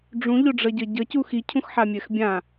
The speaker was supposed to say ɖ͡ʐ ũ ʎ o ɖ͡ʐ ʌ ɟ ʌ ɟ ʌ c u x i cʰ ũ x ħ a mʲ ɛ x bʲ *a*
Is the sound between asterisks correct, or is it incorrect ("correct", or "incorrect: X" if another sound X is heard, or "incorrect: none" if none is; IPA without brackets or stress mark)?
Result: incorrect: ã